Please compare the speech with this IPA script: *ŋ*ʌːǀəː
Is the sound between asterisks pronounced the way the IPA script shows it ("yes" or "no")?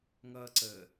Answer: yes